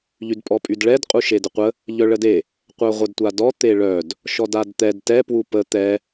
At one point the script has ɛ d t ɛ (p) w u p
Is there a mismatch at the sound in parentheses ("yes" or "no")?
no